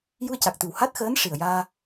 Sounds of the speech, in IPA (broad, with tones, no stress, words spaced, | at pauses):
ju˧ə̯ca˨˩k̚t̪ɨ˨˩w ha˦˥t̚xəː˧˥n ʂi˨˩ə̯jaː˧